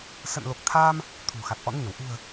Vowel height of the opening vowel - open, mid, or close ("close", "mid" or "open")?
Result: mid